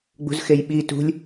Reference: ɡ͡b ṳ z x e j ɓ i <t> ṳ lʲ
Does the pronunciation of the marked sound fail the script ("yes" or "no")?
no